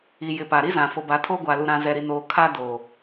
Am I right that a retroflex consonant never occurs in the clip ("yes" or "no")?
yes